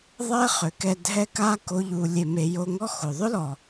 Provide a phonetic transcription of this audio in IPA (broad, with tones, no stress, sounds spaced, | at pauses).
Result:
ðˤ ɛ˦ χ ʏ˨ k ɛ˧ dʱ ɛ˦ k a˦ k o˦ ʎ u˧ lʲ e˧ m e˧ j o˧ ŋ ɔ˦ x o˨ ðˤ ʏ˦ l ɔ˨